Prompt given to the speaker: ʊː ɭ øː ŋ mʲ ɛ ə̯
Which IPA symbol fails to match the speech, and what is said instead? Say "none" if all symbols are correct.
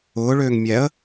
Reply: none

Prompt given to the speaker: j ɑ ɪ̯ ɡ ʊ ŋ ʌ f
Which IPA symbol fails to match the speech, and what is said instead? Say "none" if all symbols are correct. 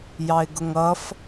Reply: none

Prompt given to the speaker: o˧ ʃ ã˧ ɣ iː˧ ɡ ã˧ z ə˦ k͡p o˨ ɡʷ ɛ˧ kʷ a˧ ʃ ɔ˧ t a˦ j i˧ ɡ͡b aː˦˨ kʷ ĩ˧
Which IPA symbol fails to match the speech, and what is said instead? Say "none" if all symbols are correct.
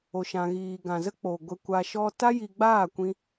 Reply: none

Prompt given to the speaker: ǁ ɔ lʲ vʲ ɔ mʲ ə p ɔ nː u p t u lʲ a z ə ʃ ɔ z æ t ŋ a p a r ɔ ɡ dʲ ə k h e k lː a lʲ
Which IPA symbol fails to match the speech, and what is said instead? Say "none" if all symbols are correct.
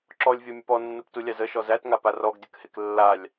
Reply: none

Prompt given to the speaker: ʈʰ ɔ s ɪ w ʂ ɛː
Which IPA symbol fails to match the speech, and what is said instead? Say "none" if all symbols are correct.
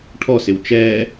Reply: ʂ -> t͡ʃ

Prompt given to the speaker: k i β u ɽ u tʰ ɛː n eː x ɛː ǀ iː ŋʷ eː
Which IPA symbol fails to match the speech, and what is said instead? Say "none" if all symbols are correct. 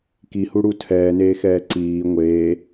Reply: β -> h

